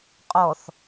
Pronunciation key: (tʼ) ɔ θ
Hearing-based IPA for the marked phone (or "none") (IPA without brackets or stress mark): qʼ